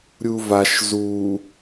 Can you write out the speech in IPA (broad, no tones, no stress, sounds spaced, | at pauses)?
ɾʲ u v a ʃ z u